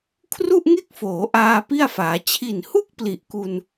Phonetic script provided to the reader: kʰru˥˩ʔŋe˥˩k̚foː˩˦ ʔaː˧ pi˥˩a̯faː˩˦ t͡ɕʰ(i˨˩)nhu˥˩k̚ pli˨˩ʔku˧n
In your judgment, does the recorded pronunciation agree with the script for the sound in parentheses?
yes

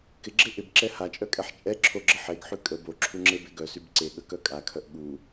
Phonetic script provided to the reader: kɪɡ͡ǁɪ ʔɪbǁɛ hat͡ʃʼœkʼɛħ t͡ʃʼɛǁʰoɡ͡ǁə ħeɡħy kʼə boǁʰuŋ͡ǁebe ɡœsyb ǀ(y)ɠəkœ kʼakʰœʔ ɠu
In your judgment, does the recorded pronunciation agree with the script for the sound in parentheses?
no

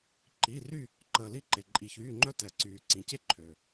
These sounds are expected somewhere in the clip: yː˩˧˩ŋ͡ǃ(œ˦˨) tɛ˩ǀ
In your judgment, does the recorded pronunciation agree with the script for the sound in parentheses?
yes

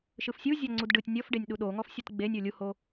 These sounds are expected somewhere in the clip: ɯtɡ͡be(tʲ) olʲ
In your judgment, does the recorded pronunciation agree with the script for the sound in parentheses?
no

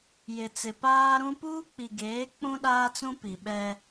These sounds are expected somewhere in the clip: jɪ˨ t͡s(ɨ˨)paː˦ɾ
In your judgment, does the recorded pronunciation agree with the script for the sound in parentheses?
no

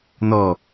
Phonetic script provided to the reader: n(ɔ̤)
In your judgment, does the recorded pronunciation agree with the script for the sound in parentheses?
no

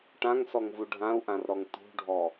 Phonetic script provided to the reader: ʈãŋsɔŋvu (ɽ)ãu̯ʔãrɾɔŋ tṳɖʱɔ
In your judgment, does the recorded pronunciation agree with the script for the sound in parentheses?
no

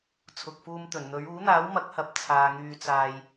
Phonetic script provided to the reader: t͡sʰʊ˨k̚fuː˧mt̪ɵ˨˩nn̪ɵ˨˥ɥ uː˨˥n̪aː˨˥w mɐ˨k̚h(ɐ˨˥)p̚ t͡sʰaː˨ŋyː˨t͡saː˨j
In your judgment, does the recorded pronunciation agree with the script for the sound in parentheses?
yes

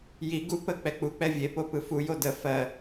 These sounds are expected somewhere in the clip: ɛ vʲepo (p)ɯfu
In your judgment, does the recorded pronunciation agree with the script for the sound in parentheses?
yes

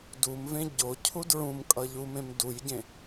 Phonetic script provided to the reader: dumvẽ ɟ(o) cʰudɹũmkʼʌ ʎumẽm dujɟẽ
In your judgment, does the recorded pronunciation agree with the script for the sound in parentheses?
yes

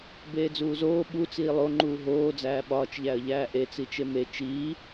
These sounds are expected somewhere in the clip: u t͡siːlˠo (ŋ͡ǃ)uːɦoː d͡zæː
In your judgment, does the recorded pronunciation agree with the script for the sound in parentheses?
yes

